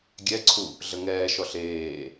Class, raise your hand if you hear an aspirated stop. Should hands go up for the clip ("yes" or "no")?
yes